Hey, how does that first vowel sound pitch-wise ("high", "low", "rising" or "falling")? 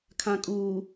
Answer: low